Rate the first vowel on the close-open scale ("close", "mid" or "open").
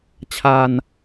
open